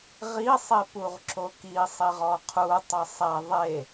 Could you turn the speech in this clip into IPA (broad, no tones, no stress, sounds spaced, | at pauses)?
ʁ i sˤ e p u ʁ ǁ o k i sˤ i ʁ ɔ qʰ u tˤ ɐ sˤ ɛ ðˤ e